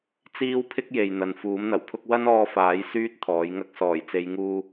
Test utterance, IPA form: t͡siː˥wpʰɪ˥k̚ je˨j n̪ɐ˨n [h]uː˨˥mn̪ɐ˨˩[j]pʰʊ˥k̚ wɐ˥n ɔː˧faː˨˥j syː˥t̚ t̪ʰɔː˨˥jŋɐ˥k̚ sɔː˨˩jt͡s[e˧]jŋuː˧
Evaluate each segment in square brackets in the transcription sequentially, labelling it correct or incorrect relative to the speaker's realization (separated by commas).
incorrect, incorrect, incorrect